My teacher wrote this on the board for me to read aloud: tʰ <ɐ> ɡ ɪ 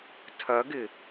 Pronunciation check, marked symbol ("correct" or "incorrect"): correct